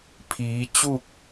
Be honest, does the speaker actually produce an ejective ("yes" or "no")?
no